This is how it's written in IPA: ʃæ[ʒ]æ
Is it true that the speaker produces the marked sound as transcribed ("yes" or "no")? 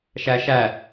no